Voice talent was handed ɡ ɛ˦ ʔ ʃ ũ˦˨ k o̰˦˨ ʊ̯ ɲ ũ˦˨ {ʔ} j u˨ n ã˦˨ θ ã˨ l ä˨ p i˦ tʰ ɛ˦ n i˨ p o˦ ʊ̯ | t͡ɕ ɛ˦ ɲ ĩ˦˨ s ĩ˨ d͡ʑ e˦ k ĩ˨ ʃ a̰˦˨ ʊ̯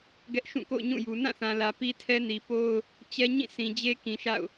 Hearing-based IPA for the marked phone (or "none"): none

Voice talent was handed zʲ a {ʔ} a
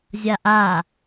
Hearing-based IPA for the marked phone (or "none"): ʔ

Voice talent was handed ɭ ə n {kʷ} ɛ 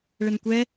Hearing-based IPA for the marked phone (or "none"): kʷ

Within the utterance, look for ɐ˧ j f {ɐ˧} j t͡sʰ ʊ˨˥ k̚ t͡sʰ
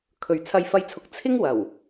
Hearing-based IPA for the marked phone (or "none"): ɐ˧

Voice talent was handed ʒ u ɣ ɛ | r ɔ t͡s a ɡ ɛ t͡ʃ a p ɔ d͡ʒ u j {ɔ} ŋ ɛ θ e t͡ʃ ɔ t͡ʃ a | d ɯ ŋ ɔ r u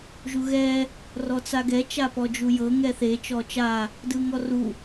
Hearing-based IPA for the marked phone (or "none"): ɤ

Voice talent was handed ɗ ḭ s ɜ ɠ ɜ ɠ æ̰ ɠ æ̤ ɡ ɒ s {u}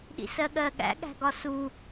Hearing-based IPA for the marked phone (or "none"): u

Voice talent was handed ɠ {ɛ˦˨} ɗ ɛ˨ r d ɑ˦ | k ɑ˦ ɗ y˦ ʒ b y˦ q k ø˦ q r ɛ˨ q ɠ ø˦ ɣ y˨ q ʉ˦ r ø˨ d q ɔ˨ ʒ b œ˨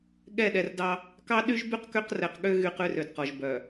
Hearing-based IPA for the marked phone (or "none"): ɛ˦˨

